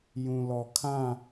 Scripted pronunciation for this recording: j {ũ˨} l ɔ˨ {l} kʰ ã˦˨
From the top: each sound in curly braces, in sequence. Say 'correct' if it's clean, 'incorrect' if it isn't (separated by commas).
correct, incorrect